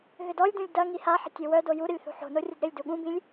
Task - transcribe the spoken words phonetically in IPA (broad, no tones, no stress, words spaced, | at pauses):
ɣʏdɔlʲdũlʲ dɐ ŋihaħə̤ tʲowœdo juɾəlʲ θṳħo̤no rʲədɾɪlʲdu ɠũbĩlʲ